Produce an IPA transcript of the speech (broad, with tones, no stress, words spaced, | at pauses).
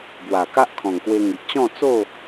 bwa˨˩ka˦ʔkʰɔ̃˨˩ŋkwe˧ ŋi˨ʔt͡ɕɔ̃˥˧ t͡so˥˧